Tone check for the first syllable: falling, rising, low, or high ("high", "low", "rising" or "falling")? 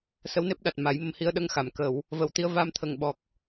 rising